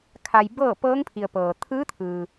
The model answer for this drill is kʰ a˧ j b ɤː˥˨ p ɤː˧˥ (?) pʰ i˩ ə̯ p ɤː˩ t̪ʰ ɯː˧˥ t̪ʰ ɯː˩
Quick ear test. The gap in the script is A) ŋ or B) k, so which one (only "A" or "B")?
A